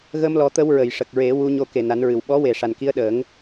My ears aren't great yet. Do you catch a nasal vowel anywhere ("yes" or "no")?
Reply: no